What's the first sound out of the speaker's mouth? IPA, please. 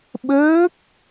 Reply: ɓ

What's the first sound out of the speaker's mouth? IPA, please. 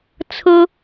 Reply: t͡sʰ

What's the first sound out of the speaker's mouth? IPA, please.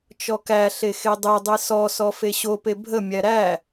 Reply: t͡ʃ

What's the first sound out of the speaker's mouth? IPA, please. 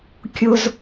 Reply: kʲ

